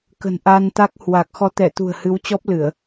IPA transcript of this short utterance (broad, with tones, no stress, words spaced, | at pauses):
kə̤˨˩n ʔa˧nt̪a˦˥k̚hwa˨˩k̚ xɔ˨˦t̪ɛ˧˩t̪ṳ˨˩ə̯ hɨ˨˦wt͡ɕɔ˦˥p̚ lɨ˧˩˨ə̯